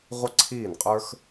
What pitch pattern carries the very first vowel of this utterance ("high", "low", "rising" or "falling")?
high